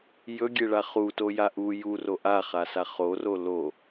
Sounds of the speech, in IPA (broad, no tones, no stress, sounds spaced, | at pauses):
j ɵ ɡʲ e ɭ a χ u t o j a ʔ u j u r o ʔ a χ a s a χ o r o l o